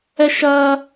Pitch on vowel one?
high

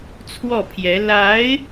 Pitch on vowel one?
falling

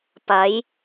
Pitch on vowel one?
rising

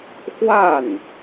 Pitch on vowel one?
falling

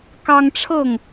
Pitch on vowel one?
high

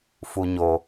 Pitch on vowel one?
low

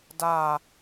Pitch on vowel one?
falling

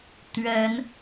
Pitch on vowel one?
rising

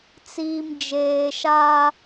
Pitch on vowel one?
low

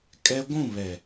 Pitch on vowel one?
high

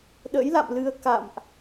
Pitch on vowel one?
rising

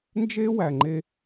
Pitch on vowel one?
high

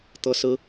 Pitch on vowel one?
high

